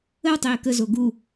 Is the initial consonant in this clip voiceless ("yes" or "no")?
no